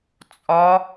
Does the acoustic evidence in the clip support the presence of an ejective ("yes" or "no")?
yes